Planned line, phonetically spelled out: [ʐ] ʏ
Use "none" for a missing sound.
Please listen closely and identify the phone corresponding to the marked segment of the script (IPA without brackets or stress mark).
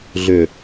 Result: ɮ